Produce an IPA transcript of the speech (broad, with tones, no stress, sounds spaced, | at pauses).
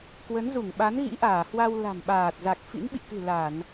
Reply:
k w ə˨˦ n z u˧˩ ŋ ɓ a˨˦ n ɣ ḭ˧˥ ʔ aː˧˩ h w a˧ w l a̤˨˩ m ɓ aː˨˩ t̚ z a˨˩ k̚ f ḭ˧˥ n ɓ ḭ˧˨ k ɨ̤˨˩ l a˧˩˨ n